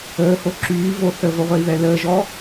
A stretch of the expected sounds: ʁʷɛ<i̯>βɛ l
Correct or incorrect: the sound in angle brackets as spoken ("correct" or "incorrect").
correct